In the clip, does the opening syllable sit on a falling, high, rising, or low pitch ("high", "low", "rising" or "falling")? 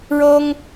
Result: high